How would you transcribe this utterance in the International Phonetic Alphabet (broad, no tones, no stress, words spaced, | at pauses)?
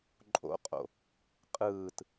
ǃʼo̰qʼo̰ | qʼɯːt